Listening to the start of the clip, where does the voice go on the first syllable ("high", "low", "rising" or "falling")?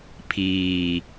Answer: low